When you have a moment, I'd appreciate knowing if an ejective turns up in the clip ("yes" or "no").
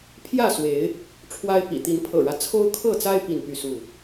no